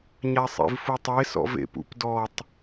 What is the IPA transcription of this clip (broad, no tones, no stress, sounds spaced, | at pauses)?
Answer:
ɲ a sˤ ḛ v f u tˤ e s ɔ̰ v ḛ p ṵ p d ɔ tˤ